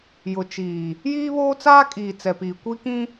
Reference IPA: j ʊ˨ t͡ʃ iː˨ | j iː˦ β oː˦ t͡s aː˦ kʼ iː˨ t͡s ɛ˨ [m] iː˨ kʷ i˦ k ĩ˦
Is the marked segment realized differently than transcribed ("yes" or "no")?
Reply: yes